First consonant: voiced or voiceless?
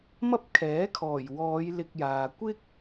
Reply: voiced